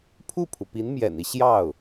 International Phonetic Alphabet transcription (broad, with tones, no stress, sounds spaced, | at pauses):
pʰ u˥˩ pʰ u˩ p i˧˥ n m j ɛ̰˨˩ n i˦ ɕ j ɑ˥˩ ʊ̯